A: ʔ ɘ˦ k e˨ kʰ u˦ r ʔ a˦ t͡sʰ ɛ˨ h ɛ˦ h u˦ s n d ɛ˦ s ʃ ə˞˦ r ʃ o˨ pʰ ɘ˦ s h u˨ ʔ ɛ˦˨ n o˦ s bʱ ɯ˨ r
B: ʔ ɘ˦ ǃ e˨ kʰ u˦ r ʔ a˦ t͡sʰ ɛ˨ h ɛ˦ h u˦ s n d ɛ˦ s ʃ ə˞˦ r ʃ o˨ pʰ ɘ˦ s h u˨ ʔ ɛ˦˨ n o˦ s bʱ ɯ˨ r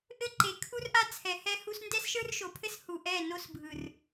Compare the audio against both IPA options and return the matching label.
B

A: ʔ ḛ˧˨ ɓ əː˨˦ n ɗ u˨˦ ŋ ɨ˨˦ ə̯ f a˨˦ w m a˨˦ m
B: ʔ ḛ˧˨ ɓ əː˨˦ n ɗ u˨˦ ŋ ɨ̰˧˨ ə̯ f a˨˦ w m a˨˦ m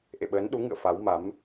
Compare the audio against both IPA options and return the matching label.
B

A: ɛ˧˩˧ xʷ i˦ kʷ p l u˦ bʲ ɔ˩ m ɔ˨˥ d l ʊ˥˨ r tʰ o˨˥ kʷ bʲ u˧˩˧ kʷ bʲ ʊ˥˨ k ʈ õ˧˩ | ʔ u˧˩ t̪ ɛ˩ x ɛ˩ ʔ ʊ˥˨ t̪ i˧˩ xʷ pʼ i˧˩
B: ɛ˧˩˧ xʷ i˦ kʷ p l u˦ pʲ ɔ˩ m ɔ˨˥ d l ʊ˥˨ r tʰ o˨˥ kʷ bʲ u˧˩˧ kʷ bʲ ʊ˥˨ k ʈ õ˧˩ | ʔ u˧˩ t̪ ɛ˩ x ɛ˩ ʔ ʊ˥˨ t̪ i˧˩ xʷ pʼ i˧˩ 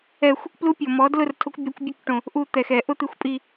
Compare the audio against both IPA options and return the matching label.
B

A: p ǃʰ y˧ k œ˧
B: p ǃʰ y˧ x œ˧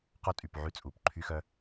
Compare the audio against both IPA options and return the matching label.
B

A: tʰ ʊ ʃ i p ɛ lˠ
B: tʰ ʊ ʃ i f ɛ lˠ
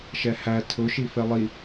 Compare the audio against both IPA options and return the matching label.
B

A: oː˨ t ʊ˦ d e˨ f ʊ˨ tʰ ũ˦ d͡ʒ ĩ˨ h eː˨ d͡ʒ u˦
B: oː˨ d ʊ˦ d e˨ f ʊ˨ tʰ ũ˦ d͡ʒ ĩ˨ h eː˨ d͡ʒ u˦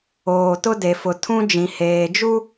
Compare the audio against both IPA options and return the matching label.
A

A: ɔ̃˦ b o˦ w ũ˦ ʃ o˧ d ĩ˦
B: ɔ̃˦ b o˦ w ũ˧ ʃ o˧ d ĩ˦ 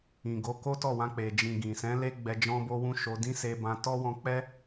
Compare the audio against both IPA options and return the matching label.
A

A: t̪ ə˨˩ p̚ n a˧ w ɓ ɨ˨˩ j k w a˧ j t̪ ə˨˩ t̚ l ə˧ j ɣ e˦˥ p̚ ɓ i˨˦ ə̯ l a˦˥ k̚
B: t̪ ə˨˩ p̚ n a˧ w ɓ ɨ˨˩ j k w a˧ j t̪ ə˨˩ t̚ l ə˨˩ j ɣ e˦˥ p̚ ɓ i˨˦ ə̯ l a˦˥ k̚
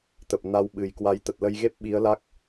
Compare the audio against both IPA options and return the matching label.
A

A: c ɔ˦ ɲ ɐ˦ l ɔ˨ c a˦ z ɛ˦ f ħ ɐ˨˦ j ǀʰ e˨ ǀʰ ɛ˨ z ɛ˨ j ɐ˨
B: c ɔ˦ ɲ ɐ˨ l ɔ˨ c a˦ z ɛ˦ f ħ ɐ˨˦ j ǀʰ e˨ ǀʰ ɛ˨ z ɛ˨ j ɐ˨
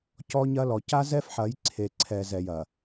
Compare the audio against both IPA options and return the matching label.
A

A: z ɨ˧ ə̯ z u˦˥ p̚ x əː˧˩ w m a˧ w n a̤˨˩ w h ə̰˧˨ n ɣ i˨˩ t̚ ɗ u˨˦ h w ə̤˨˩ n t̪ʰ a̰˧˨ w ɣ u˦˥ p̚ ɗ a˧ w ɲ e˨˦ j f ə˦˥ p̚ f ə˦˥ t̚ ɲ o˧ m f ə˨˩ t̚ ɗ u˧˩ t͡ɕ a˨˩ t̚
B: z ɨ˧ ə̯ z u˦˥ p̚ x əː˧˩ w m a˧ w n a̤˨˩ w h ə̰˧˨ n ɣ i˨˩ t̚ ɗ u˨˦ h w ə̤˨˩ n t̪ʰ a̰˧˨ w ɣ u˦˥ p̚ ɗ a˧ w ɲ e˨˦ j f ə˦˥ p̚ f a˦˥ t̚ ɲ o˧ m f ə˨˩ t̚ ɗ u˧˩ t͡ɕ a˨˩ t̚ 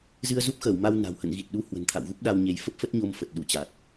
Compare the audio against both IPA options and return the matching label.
A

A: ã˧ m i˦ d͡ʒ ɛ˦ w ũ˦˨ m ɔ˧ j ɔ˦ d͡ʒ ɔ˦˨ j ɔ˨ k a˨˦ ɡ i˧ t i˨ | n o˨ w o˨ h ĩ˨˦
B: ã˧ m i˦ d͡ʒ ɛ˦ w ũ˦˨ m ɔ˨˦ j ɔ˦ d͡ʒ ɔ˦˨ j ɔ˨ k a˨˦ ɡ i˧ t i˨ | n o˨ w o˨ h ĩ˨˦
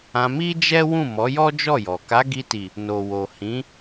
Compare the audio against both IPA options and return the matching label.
B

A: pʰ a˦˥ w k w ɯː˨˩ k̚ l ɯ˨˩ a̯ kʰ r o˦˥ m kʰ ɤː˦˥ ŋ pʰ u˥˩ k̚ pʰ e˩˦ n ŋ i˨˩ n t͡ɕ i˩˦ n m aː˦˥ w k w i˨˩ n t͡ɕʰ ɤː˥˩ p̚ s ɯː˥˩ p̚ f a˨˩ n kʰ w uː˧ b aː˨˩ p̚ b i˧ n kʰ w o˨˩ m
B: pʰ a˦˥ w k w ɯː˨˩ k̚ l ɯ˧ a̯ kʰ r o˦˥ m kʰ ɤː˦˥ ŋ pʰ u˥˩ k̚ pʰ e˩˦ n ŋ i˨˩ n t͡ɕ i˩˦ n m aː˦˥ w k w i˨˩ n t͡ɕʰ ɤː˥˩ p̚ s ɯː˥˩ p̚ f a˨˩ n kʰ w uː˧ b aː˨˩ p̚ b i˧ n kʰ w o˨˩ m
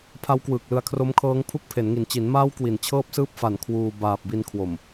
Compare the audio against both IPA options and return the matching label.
B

